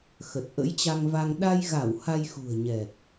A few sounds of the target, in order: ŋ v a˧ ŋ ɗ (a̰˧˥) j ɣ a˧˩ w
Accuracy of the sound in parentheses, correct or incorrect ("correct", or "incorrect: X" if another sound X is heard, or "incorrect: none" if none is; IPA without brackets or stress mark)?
incorrect: a˧